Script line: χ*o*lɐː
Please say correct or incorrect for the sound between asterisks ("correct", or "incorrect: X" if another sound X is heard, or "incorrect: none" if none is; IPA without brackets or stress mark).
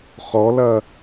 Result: incorrect: ɔ